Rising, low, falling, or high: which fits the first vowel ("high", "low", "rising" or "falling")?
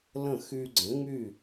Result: falling